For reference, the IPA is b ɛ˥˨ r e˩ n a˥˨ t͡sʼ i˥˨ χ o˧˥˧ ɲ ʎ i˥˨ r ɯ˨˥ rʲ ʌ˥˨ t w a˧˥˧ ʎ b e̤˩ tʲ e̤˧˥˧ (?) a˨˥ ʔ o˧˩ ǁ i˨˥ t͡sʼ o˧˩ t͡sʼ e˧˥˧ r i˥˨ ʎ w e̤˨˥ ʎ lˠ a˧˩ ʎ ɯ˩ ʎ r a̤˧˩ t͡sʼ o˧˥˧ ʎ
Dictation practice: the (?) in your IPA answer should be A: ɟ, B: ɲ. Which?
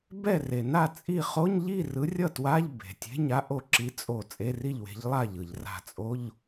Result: B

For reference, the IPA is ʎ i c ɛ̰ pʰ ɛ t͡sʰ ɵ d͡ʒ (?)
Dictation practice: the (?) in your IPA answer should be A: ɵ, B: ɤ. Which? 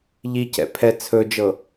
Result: B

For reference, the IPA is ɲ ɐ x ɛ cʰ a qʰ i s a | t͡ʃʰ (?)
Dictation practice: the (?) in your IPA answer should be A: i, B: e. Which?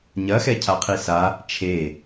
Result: B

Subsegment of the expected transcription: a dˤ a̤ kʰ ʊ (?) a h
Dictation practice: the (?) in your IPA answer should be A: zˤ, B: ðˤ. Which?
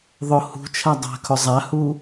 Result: A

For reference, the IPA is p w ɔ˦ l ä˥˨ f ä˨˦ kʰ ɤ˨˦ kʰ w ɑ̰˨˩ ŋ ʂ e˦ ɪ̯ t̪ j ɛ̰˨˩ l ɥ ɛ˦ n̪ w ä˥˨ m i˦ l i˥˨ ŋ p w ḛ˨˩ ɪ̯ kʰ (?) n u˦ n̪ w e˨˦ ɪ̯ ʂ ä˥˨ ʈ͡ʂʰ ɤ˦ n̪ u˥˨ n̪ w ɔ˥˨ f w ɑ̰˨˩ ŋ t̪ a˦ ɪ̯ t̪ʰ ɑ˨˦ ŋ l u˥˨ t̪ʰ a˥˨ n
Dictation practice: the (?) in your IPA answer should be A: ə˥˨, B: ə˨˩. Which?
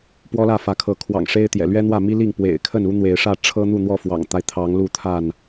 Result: A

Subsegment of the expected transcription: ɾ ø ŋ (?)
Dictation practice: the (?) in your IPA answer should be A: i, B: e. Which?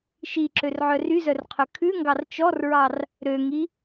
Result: A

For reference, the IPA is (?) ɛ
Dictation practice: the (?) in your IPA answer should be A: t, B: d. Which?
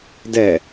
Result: B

